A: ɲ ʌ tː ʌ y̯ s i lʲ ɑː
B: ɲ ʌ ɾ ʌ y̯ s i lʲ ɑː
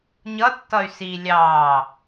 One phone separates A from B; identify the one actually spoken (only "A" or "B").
A